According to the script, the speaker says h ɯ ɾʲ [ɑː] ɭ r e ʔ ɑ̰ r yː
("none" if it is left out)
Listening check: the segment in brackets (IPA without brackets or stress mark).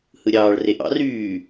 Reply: ɑː